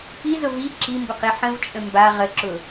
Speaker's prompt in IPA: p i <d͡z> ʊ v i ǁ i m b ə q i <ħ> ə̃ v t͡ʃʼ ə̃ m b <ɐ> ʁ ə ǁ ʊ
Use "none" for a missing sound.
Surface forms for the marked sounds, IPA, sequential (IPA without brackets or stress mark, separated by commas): z, ħ, a